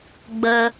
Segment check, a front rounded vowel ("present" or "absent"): absent